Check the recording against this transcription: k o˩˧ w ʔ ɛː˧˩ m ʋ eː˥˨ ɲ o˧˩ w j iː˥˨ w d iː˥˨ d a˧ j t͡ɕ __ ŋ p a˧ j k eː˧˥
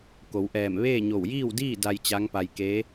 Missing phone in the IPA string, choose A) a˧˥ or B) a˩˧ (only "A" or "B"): A